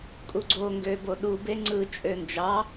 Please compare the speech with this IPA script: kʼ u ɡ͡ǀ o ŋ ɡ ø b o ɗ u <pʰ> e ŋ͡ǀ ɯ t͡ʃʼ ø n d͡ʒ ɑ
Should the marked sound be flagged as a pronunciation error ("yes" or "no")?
yes